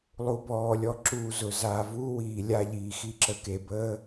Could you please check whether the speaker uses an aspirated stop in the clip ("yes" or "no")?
no